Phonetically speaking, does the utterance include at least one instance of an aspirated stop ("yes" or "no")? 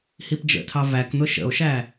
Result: yes